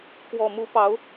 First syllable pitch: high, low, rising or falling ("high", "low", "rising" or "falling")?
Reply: low